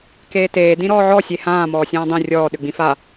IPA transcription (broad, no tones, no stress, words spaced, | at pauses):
keːteː dĩɾɔːʕɔ sʲehãː mɔːsʲãːdˤẽ rʲɔː ɗʏɡ͡bĩfa